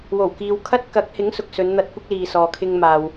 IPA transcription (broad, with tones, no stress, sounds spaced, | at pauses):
w o˨˩ w k iː˨ w kʰ ɐ˥ t̚ k ɐ˨˥ k̚ h ɪ˨˥ ŋ s ʊ˨ k̚ s ɵ˨˧ n n̪ ɐ˧ t̚ kʷ ɐ˥ k̚ l iː˨ s ɔː˨ kʰ ɪ˧ ŋ m aː˨ w